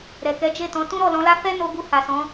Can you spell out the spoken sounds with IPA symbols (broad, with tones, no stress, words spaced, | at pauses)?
ɾɛ˨kɛ˨˦d͡ʒe˦˨tɔ̃˨˦ tũ˦ɾɔ˦˨lɔ̃˨˦la˦ fɛ˦no˧ɡu˧ ha˨sɔ̃˨˦